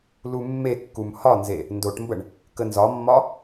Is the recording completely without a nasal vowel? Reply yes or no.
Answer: yes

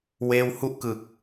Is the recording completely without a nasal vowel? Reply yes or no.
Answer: yes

